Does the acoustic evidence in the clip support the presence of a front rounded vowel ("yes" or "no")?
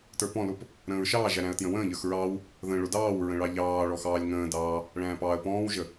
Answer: no